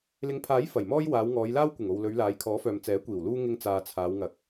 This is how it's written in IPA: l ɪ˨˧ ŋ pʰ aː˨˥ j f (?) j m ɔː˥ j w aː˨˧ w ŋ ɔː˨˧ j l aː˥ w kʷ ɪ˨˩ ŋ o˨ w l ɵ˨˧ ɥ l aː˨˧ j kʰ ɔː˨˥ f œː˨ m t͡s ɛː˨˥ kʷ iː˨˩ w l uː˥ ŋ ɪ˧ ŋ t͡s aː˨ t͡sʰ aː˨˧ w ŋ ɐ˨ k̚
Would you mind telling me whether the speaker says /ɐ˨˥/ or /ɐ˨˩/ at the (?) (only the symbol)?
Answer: ɐ˨˩